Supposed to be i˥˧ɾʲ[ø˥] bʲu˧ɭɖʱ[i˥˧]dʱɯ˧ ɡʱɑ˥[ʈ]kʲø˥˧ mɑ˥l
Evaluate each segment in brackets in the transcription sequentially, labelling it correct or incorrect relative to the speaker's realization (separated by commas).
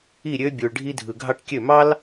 correct, incorrect, correct